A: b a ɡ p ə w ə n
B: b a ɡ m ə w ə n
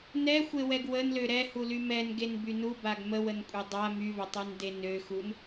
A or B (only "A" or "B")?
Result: B